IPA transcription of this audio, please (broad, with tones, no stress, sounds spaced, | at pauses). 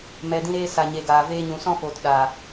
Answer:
m ɛ˨ d ĩ˧ ɾ eː˧ s a˨ ɲ e˨ ɡ aː˨ v eː˧ ɲ ũ˨ s ɔ̃˦ f oː˨ t ɗ aː˨